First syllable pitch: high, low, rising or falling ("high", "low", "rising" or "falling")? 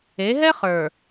rising